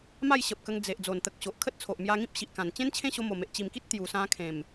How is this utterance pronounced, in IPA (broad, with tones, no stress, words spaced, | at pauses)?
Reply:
ma˥˧jɕə˨p̚kə˧ŋ d͡ze˨ʔ d͡zo˨˩nt̪ə˨k̚ɕo˨ʔ kʰə˦t̚t͡sʰo˨ʔmja˧ŋĩ˦p̚ ɕi˨ʔkã˨˩n t͡ɕẽ˦nt͡ɕʰẽ˥˧ɕo˧mo˨˩ me˨ʔt͡ɕi˨˩mki˦t̚ t̪ju˨˩sã˧ kʰẽ˨˩m